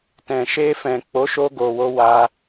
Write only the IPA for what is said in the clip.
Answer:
tɛ̃˨ʃe˧fɛ̃˨ k͡po˨˦ʃo˧ ɡo˨wo˧wa˧

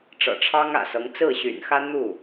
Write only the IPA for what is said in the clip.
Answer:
ʈ͡ʂɤ̰˨˩ʈ͡ʂʰɑ˥ŋä̰˨˩sɤ˧˥ŋ t͡sɹ̩˥˩ɕy̰˨˩nxä˥ n̪u˥˩

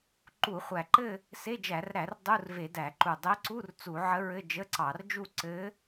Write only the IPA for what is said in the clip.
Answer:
ǃu˧˩˧χʷæ˨˩ǃɘ˥˧ | se˧˥˧d͡ʒæ˧˩˧rɾæ˧˩˧r dˤu˧˥˧rve˧˩˧dæ˧˩˧ǃu˨˩ dˤe˧˥ǀu˧˥˧r t͡su˧˩˧ʕə˧˥ɹɘ˧˥˧ d͡ʒə˧˥˧ǀɑ˧˩˧rd͡ʒu˥˧ ǀɘ˧˥

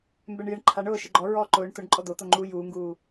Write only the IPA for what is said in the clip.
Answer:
mbɛɳjɪɳ ǃʰaɳ ʊːʃɪ ɡ͡ǃɔ ɹɔːǃʊːɳ tʊɳ ǃʼɔd̪ot̪o ŋ͡ǃu juːŋɡuː

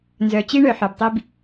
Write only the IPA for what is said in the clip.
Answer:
nzœ˨t͡ɕi˦ ɳœ˨ħœ˨btˤi˦b

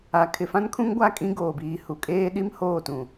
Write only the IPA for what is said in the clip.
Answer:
a˨ kʰɪ˨fã˦nkʰũ˦ŋɡʷa˦˨ kʼĩ˦ɡoː˨biː˨hu˨ kʼeː˦ ɗi˦m hoː˦˨tũ˨

